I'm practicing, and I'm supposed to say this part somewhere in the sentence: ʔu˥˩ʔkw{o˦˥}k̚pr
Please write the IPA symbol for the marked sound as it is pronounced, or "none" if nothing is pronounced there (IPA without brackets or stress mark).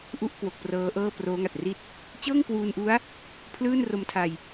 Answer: o˨˩